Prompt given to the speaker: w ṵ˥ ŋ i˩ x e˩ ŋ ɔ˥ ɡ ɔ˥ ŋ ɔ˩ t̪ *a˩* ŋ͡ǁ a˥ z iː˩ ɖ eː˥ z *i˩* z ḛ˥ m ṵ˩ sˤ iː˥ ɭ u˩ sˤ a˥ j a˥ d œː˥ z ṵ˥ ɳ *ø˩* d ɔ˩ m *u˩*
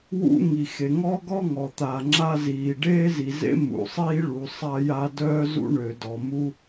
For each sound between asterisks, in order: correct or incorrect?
correct, correct, correct, incorrect

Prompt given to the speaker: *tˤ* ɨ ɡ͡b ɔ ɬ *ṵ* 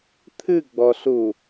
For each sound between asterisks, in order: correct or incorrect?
incorrect, incorrect

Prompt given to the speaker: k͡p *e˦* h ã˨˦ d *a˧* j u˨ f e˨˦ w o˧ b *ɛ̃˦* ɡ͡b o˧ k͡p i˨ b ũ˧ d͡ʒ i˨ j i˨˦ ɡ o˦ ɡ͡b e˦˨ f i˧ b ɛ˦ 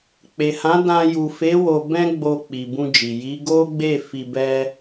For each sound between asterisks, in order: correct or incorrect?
incorrect, incorrect, correct

